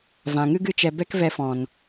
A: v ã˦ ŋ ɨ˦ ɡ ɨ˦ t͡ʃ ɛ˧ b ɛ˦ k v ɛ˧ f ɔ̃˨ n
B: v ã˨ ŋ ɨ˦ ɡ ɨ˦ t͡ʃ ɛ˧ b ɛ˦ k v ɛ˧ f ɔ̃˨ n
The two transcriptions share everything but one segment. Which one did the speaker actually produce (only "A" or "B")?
B